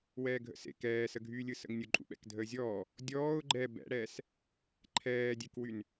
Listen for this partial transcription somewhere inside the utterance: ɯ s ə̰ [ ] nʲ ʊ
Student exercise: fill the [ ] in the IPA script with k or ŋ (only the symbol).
ŋ